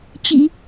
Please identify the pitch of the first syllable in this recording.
low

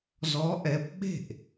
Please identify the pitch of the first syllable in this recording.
rising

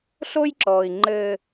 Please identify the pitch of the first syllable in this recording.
high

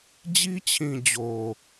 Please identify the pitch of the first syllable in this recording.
high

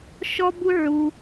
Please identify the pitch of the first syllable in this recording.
high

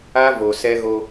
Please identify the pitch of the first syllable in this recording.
high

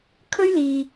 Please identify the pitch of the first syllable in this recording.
high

